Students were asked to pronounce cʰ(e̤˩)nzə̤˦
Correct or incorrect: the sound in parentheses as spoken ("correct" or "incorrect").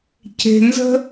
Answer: correct